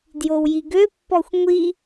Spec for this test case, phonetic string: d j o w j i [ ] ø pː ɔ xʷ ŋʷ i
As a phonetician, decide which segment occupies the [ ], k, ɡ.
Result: ɡ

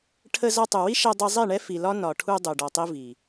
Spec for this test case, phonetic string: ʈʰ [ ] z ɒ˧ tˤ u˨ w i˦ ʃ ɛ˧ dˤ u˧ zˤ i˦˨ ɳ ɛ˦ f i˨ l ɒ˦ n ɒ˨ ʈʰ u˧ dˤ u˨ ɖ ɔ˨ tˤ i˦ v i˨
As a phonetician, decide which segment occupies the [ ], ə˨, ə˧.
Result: ə˧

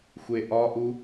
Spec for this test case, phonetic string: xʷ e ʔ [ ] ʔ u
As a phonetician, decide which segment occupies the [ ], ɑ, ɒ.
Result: ɒ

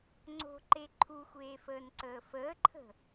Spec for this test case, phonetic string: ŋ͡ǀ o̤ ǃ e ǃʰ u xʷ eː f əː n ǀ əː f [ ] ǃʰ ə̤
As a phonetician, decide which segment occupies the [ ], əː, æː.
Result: əː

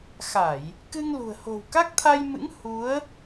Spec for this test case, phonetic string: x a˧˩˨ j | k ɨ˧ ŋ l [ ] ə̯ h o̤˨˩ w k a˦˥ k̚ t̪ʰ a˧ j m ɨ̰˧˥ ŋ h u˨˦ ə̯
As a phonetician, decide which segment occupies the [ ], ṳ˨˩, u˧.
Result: ṳ˨˩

